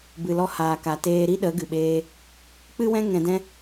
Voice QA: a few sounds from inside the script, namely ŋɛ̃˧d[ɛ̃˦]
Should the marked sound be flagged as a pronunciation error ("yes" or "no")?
no